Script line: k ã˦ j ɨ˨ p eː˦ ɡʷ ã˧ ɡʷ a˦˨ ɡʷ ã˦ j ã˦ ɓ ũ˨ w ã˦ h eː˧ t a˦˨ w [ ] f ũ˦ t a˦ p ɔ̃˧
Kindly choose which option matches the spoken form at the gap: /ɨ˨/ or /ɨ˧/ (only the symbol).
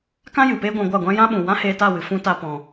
ɨ˨